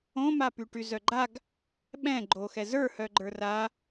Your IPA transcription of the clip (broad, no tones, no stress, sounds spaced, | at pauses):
õ m a p y ʈ y z œ ɡ͡ǃ a ɡ | ɓ ɛ̃ ɡ͡ǃ o x ɛ z ə˞ h œ ɡ͡ǃ ə˞ r a